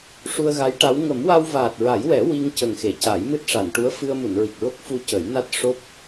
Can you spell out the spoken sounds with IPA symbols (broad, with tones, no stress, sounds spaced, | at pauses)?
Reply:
ʂ u˧ ə̯ ɣ a˧˥ j ʈ a˧˥ w ŋ ə˨˩˦ m w a˧ w v aː˨˩ t̚ ɹ a˨˩˦ j w ɛ˨˩˦ w i˧ ŋ c ə˨˩ ŋ x e˨˩˨ c a˨˩˦ j m ɨ˦˥ t̚ ʂ a˨˩˨ n ʈ u˧˥ ə̯ f ɨ˧ ə̯ m u˨˩˨ n ɹ i˨˩ k̚ ɹ o˦˥ k̚ f u˧ c ə˨˩˦ j n a˦˥ t̚ ʂ o˦˥ p̚